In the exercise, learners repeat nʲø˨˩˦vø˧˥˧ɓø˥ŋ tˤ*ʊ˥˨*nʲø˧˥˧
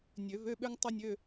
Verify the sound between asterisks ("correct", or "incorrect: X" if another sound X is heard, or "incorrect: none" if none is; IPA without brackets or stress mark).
incorrect: ʊ˥